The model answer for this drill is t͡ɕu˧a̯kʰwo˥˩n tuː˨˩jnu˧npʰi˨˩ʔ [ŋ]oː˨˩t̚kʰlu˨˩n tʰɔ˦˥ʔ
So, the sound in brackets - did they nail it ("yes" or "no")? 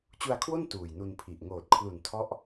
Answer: yes